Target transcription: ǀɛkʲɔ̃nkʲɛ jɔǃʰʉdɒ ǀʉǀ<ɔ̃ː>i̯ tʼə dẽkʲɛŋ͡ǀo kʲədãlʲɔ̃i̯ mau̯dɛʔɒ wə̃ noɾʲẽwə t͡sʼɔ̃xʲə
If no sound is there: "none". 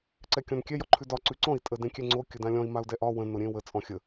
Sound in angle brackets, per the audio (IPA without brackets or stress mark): ɔ̃